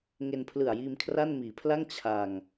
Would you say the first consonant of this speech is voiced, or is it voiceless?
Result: voiced